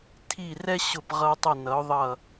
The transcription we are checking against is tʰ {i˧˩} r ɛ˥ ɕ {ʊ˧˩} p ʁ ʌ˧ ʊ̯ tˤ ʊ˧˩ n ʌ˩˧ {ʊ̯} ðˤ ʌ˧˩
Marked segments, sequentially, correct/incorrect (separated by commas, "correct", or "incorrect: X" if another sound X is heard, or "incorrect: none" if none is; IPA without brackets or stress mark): correct, correct, correct